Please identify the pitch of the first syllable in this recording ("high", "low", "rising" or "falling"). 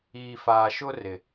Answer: low